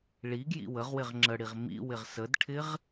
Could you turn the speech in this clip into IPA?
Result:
ɭ i ɡ j ḭ w ə ʁ w ɪ ʁ ŋ͡ǁ ə ɽ i ʁ m ḭ w ɪ ʁ s ə d ʈʰ ɪ ʁ

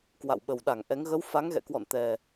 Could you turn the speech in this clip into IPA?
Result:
k w a̰˧˨ w ɓ ə˨˩ w ɗ a˧˩ ŋ ʔ ɛ˨˦ ŋ ɣ ə˨˦ w f a˨˦ ŋ ɣ ɛ̰˧˨ k w ɔ̰˧˨ n t̪ ɛ˨˩

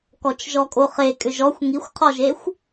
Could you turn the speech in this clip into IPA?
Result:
k ɔ t͡ʃ ʒ ɔ kʼ o χ e kʼ ʏ ʒ ɔ xʷ ŋ i xʷ qʰ ɔ ʒ e xʷ

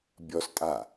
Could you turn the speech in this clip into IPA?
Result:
bʲ ɔ s tʼ aː

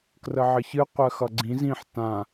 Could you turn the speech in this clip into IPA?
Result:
k r ə ʕ ə ç ɨ qʷ ɜ x ʌ ɡ͡ǀ ĩ z ĩ ħ t ã

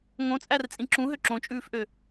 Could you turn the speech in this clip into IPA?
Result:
ŋ õ t͡sʼ æ r t͡sʼ ĩ ǁ ũ ɦ ø ǁ õ t͡ʃʼ ʉː f ʔ ø

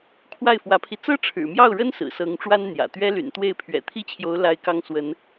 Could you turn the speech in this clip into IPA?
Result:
kʰ w a˥˩ ɪ̯ f w ä˧˥ pʰ i˧ t͡s ɤ˥ ʈ͡ʂʰ ɻ̩˨˩ m j ɑ˥˩ ʊ̯ ɻ ə˥ n s ɹ̩˨˩ s ɤ˧˥ ŋ ʈ͡ʂ w a˥ n n̪ j ä̰˨˩ t̪ ɥ ɛ˥ l y̰˨˩ n t̪ w e˥˩ ɪ̯ pʰ ɥ ɛ̰˨˩ t̪ʰ i˥ t͡ɕʰ j o˧˥ ʊ̯ l a˥ ɪ̯ k ɑ˥ ŋ s w ə˧˥ n

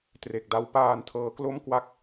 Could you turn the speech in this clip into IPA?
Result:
t r e˨˩ k̚ d a˦˥ w p aː˧ n tʰ ɤː˦˥ k l o˥˩ m k w a˦˥ k̚

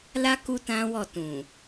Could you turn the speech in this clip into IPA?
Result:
l a˦ k u˦ t ã˦ w ɔ˦˨ t ũ˨

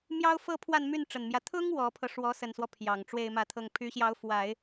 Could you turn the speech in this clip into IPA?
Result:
m j ɑ˥ ʊ̯ f ɤ˥˧ pʰ w a˥˧ n m y˥˩ n ʈ͡ʂ ə˨˩ n m j ä˦ t̪ʰ ʊ˥ ŋ w ɔ˧˥ pʰ ɤ˧ ʂ w ɔ˧˥ s ə˨˩ n s w ɔ˦ pʰ j ɑ˨˩ ŋ ʈ͡ʂ w e˥˧ ɪ̯ m ä˥˧ t̪ʰ ɤ˥˩ ŋ pʰ y˧˥ ɕ j ɑ˧˥ ʊ̯ f w a˨˩˦ ɪ̯

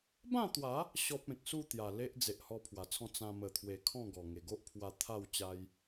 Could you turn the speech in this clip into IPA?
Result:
b ã˥˧ t̪ w a˨˦ | ɕ ɔ˦ p̚ ẽ˨ k̚ s u˥˧ t̪ j a˨˩ l e˦ ʔ d͡z e˨ ʔ h ɔ˧ pʰ w a˨˩ t͡sʰ ɔ̃˥˧ t͡s ã˧ m ə˨˩ t̪ʰ w e˨˩ kʰ ɔ̃˥˧ ɡ ɔ˨˩ ŋ e˨˩ ɡ o˦ ʔ pʰ w a˧ t̪ʰ a˥˧ w t͡ɕ a˧ j

